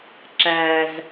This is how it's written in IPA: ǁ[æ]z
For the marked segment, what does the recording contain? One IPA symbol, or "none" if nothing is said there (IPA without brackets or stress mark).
æ